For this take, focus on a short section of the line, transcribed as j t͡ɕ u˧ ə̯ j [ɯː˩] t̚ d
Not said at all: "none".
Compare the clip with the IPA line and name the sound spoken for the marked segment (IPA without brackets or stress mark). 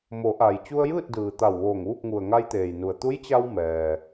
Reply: ɯː˥˨